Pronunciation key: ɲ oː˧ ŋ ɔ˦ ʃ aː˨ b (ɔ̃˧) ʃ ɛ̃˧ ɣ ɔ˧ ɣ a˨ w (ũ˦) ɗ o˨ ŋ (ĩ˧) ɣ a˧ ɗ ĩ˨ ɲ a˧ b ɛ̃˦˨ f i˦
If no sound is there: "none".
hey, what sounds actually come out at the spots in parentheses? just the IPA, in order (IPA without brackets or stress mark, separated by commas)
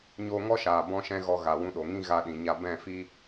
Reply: ɔ̃˧, ũ˧, ĩ˧